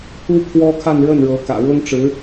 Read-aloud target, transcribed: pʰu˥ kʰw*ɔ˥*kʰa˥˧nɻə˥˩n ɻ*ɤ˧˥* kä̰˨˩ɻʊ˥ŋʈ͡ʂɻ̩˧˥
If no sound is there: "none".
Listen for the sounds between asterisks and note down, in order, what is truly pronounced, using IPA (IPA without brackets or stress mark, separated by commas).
ɔ˥, ɤ˧˥